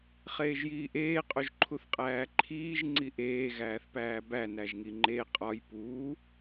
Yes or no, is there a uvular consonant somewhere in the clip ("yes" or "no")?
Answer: yes